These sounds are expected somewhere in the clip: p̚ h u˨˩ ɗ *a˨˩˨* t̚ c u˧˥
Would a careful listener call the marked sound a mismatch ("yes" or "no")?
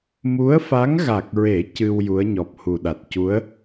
yes